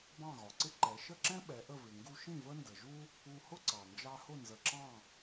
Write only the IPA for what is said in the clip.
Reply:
b ɑ̃˥˩ ɣ ɒ˩ ǀ ɪ˥ ǃ ɛ˩˥ ʃ ə˥˩ ǁ ɛ̃˥ ɓ ɛ˩˥ ʔ ə˥˩ v ɪ˩ ŋ ɡ u˧ ʃ ĩ˥˩ v ə˥ n d ə˩ ʒ u˥ | u˧ h ʊ˥ ǀ ɑ˩ n d͡ʒ ɑ˧ h ʊ˥˩ n z ə˩ ǁ ɑ̃˥˩

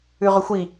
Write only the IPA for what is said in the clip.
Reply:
ʉ ʁ ʏ xʷ i

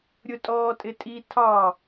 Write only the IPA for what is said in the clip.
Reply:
ɾʲ ʊ tʼ ɔː tʼ ɪ tʼ i tʰ ɑ

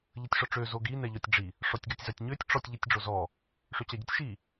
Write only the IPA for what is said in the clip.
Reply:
ʎ ə tʲ ʂ ɔ ʈ͡ʂ ø z o ɡ i n ɛ ʎ ɔ tʲ ɖ͡ʐ i | ʂ ɔ tʲ ɡ a tʲ z a tʲ ɲ ø tʲ ʈ͡ʂ ɔ tʲ ʎ i tʲ ɖ͡ʐ o z ɔ | ʂ ø t͡ɕ a ɟ ɛ tʲ ʃ i

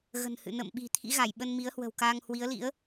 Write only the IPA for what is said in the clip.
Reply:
ɣ ə̤˨˩ n h ɨ̰˧˨ n ə̰˧˨ m ɓ i̤˨˩ t̪ʰ ḭ˧˥ ɣ a˧˩ j ɓ ə˧ n m i˨˦ ə̯ h w ə̤˨˩ w k aː˧ ŋ h w i˨˦ ə̯ l ḭ˧˥ ə̯

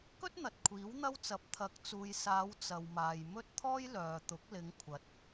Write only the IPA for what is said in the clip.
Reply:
k ɵ˥ t̚ n̪ ɐ˨ t̚ kʷʰ iː˨˥ w n̪ ɐ˥ w t͡s ɐ˨ p̚ t̪ʰ ɐ˨˥ k̚ t͡s uː˨ j s aː˨˧ w t͡s ɐ˨ w m aː˨ j m ɵ˥ t̚ t̪ʰ ɔː˥ j l œː˨ t̪ ʊ˨˥ k̚ l ɪ˨˧ ŋ kʷʰ ɐ˨ t̚

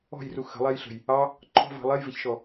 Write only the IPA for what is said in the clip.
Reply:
ɔ̤ j r u x ə̤ lˠ ɛ j ɬ ə̤ j | ɑ | ǃʰ ɔ̤ v ɑ̤ lˠ ɛ j v ɪ ç ʃ ɔ

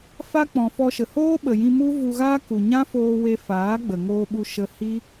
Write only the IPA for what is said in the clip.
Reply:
f a˦ k͡p ɔ̃˨ f ɔ˧ ʃ ə˨ h oː˦ ɓ ə˨ j ĩ˧ m u˦ v u˧ ɣ aː˦ k u˨ ɲ ã˦ f oː˧ w e˧ f aː˨˦ ɡ͡b ə˨ ŋ oː˧ ɓ u˧ ʃ ə˧ h i˦

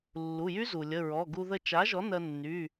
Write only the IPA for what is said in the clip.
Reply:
lː u˩˧˩ j y˦˥ z u˩ lʲ ə˩˧˩ ɹ ɔ˩˧˩ ɡ u˧ ð ə˧˩ t͡ʃ a˩˥ ʒ ɔ˩˥ n ɜ˧ nː y˩˧˩

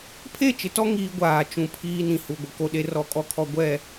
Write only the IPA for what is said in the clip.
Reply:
pʰ e˦˨ t͡ʃ ɪ˨ t ɔ˦ ŋ iː˦ ɡʷ aː˨ t͡ʃ ũ˨ pʰ iː˦ n ĩ˨ h u˨ ɡʷ ɪ˨ k o˦ ɗ e˦ r ɔ˦ kʼ ɔ˦ kʰ ɔ˦ ɡʷ ɛ˦˨

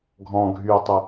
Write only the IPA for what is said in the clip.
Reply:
ɡʱ ɔ̃ ɡʱ y o̯ tˤ ə

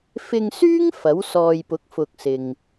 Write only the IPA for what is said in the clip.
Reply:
f ɪ˧ ŋ s yː˥ ŋ f ɐ˨˥ w s ɔː˧ j p ʊ˨˥ k̚ f ʊ˧ k̚ s ɪ˧ ŋ

